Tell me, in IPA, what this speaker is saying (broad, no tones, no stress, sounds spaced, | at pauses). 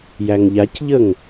j æ ŋ ʎ a c ʎ ə ŋ